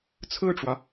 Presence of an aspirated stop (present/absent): present